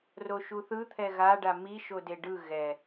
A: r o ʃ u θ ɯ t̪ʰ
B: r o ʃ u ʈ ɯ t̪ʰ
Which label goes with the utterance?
A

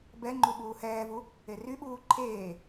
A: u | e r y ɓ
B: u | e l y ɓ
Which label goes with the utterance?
A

